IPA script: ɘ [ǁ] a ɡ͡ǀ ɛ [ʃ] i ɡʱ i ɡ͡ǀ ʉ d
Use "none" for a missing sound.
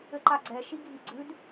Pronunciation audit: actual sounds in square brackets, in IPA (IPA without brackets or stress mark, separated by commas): ǃ, ʃ